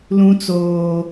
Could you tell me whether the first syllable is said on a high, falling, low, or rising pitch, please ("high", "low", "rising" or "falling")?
high